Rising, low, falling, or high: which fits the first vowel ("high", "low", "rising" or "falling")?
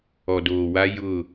low